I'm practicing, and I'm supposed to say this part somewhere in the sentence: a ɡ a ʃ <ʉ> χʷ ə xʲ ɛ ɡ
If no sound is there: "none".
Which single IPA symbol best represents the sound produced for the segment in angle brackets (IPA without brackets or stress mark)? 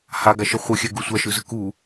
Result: ə